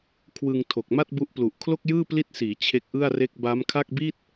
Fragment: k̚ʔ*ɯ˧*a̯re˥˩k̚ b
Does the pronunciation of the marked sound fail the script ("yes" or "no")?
yes